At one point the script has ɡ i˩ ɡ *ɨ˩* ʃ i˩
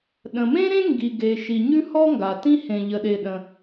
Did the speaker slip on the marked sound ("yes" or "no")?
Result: yes